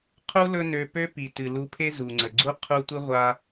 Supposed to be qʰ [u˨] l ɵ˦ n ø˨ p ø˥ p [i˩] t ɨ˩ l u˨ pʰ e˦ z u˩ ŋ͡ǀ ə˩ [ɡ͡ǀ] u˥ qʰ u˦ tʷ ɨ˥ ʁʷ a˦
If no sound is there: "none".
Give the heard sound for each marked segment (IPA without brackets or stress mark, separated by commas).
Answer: u˥, i˩, ɡ͡ǀ